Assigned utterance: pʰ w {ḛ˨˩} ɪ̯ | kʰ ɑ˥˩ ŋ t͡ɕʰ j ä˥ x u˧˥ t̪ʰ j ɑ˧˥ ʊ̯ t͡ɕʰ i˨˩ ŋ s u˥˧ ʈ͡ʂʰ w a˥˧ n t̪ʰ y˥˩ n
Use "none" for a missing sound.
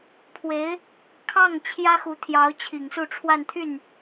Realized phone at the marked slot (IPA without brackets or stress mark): e˧˥